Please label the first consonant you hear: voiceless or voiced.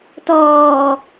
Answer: voiceless